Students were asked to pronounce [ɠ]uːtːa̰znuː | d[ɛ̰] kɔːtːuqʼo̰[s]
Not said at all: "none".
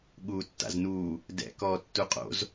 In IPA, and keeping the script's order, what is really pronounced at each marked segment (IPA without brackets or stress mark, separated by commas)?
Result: ɠ, ɛ̰, z